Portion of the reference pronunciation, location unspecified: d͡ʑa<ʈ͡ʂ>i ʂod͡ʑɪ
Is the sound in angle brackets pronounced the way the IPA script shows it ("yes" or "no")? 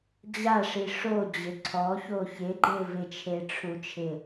no